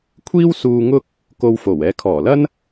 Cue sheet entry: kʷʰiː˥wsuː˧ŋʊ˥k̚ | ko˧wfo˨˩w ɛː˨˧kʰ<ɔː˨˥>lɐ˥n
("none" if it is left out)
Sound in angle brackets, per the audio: ɔː˨˩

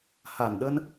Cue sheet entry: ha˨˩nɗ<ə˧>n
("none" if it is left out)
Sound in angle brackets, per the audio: ə˧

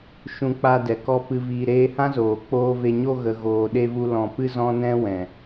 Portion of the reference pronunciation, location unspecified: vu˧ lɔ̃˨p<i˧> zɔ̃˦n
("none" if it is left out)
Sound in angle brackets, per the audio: ɨ˧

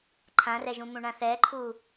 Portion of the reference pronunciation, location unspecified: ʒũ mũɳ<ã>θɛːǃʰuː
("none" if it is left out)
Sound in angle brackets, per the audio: ã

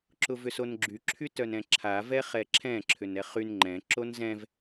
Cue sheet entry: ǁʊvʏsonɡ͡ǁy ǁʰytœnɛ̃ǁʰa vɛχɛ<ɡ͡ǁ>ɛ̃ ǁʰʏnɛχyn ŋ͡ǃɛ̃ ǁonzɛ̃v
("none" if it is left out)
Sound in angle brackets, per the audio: ǁʰ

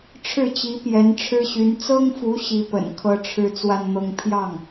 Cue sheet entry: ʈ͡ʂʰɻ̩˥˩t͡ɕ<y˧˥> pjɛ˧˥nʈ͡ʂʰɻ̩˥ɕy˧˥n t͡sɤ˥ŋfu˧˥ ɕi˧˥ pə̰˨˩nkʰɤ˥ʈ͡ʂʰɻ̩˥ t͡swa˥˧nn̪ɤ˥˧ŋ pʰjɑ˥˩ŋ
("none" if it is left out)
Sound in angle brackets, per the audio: i˧˥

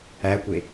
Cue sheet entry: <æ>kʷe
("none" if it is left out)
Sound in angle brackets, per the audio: æ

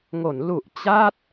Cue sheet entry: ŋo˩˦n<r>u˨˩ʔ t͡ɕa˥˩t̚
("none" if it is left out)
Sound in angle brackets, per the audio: l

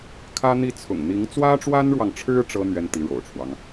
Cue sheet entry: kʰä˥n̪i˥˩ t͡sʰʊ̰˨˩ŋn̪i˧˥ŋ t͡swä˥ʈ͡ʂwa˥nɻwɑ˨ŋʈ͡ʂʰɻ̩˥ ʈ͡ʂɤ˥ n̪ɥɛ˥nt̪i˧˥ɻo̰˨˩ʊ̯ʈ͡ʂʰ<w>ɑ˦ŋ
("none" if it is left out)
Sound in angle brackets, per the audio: w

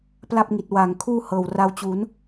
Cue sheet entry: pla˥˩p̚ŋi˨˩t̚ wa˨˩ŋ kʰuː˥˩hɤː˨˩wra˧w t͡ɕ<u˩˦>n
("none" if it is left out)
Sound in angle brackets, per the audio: u˩˦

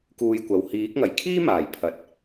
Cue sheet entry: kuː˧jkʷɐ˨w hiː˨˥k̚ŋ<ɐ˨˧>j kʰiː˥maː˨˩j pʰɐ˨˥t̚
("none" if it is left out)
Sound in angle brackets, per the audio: ɐ˨˩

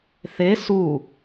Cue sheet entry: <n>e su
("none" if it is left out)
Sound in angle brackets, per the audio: θ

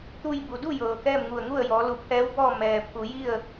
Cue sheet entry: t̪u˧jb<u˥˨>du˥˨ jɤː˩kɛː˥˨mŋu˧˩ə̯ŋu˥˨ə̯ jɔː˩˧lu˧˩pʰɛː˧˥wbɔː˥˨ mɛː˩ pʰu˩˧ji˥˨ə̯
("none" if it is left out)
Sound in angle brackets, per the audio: u˩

